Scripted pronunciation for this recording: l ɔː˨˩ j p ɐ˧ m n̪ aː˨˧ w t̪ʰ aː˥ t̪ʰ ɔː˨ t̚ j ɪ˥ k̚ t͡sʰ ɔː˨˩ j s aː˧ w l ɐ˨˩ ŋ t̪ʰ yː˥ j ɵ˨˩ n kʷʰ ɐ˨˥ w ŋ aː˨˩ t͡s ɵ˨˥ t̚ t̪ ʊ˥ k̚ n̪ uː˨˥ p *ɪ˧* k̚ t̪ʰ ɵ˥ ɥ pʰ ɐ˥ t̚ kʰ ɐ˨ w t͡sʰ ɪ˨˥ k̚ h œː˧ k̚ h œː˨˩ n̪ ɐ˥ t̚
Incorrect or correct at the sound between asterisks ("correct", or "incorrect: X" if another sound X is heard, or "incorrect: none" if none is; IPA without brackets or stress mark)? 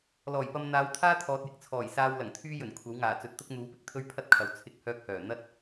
correct